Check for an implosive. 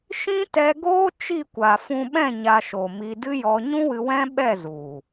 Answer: present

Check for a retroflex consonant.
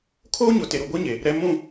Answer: absent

